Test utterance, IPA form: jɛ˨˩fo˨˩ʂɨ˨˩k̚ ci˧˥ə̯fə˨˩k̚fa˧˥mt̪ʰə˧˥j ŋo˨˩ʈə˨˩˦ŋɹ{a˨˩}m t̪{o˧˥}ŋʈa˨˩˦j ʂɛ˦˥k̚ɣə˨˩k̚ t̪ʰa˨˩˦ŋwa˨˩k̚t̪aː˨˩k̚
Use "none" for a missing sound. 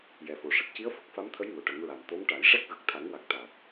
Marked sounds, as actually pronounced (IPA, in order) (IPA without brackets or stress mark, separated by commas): a˨˩, o˧˥